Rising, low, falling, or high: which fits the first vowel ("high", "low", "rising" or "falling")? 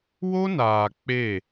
high